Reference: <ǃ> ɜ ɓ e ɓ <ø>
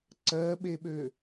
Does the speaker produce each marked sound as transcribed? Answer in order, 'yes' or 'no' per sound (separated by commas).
no, yes